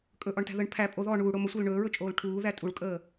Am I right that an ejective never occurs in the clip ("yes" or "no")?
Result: no